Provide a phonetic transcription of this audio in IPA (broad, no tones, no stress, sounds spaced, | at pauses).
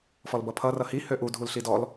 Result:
f ɔ l b ʌ pʰ ʌ r ʌ h i h ø ʔ u dʱ u l ɬ i d ɔ l